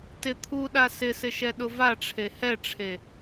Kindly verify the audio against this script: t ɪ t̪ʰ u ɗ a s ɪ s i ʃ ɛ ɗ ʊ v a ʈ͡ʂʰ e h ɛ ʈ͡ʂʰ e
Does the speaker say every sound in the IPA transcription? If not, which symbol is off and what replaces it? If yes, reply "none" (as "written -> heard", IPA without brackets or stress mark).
i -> ɪ